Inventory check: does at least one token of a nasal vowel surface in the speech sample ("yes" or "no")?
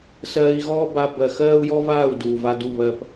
no